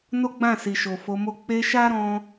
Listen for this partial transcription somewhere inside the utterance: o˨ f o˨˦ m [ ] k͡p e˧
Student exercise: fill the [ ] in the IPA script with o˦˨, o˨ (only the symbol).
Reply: o˦˨